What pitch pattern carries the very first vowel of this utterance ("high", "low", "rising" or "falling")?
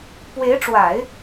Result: rising